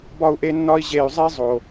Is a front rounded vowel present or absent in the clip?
present